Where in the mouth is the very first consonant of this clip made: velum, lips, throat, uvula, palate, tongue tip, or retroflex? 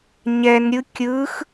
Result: palate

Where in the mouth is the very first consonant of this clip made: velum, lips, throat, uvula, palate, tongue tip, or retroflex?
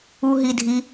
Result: throat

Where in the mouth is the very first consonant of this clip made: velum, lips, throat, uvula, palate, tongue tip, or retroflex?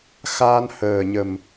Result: velum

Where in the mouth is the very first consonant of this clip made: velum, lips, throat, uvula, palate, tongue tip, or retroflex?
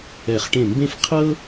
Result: uvula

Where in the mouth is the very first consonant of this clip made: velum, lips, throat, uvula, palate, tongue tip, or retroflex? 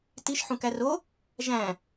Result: tongue tip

